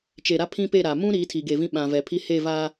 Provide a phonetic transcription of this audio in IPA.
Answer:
t͡ʃe˨ɾa˦ pʰĩ˦pe˦˨ ɾa˨ mũ˦ ɾiː˨˦tʰi˨ɡe˨vĩ˦ ɓã˨vɛ˨pʰi˦ he˦˨vaː˦

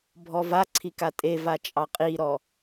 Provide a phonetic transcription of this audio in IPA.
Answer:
bʱɔvaǀʰi katʼevat͡ʃʼɑ qʼiɾɔ

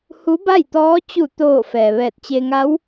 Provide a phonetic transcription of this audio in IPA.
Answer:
hu˧˥ba˥˨jt̪ɔː˧˥ t͡ɕu˧˩ t̪oː˧˩ fɛː˩ʋɛː˧˩t̚t͡ɕe˧ŋa˧˥w

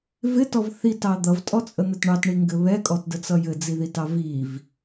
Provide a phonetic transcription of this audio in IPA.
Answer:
vɪtɔv θitɑ d̪ʌvtʼɔt͡sʼən̪ɘt ɳɑtɳiŋɡɘ βɛkʼɔtdət͡sʌ jɘd͡ziðitɑ viv

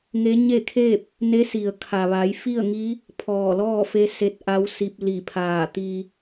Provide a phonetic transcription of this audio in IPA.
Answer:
ŋe˧˥ɲe˥˨kʰe˥˨p̚ | ne˧˥si˩ə̯ kʰa˩ʋa˩˧jfi˥˨ə̯ŋi˧˥ | pʰɔː˧˩lɔː˥˨fe˧˥ se˧t̚ʔa˧˥wsi˧p̚li˧˩ pʰaː˧˩t̪i˧

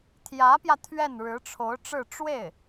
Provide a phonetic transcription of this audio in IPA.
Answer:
t̪ʰjä˧˥pjä˧ t̪ʰɥɛ˥˩nɻɻ̩˧˥ʈ͡ʂʰo˧˥ʊ̯ ʈ͡ʂɻ̩˥˧ ʈ͡ʂwe˥˩ɪ̯

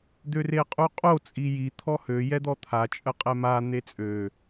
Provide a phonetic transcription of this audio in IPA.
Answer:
d̪øreqʼuqʼo t͡sʼiji t̪ʰɔhø jɛd̪ɔt̪ʰa t͡ʃʼəqʼɛma n̪et͡sʼø

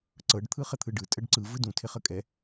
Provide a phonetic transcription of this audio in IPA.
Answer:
ǀɤɖ t̪ʰɯχɘt̪ʰɯɖɯ tʼəɖǀɯ vɯdũ tʰɪχəkʼɛ

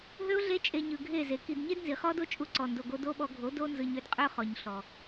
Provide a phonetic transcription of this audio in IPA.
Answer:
ɦø˦ʊ̯ɮe˦t͡ʃʼe˧ ɲɯ˨ɡʱe˦˨ ze˨ki˧d ɲe˦dnzi˨χɔ˦do˦ t͡ʃʼu˧ǀɔ˨ndo˨ɡo˧ do˦ ɓɔ˧ɡʱo˨˦d o˦nzɯ˧ɲ ø˦dqʼø˦ χɔ˨ɲɬɔ˨

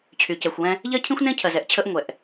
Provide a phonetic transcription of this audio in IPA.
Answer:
t͡ɕʰyː˨cɛ˨xʷwɛ̃˦ | ʎɜ˦cʰĩ˦xʷnẽ˦ cʰɜ˨zɛ˦ʔt͡ɕʰəː˦ʔ ŋʷɛ˨ʔ

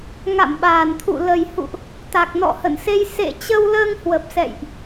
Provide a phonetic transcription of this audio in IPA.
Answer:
ŋa̰˧˨mɓaː˨˩nt̪ʰṵ˧˨ lə˨˩jhṵ˧˨ʔ | t̪a˨˩k̚nɔ̰˧˨hə̰˧˨nse˧j sḛ˧˨ t͡ɕə˧wləː˧ŋ hwə˨˩p̚sɛ̰˧˨jʔ

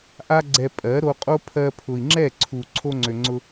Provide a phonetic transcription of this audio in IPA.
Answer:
ʔa˦ ɡ͡ǀɛ˧ pʼɜ˨˦ ɾo˧qʼo˦ pʰɜ˧ pʰʊ˨i̯ŋ͡ǁɛ˦˨ǀʰu˨ ǀʰo˧ŋ͡ǀø˨ŋ͡ǀʊ˧

